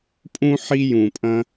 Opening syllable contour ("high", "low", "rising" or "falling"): high